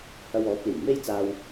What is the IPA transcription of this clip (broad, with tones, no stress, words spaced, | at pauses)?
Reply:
hɐ˧w ɔː˨˥p̚liː˨˩ŋ me˥jt͡saː˧w